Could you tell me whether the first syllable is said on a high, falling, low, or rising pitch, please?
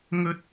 high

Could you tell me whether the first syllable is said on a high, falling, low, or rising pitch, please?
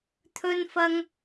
high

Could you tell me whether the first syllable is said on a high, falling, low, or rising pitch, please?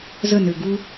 falling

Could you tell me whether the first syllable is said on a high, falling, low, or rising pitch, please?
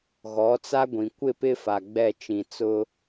rising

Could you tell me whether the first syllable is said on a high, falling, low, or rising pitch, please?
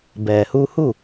low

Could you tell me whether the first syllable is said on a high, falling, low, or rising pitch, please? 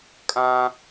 high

